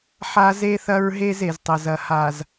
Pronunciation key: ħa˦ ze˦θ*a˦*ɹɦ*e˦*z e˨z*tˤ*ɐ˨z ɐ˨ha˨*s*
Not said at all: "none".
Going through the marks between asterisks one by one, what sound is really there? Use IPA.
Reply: ɐ˦, e˦, tˤ, z

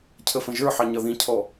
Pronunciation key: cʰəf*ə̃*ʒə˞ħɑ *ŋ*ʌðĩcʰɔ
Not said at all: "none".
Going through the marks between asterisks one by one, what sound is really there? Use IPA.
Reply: ə̃, ɲ

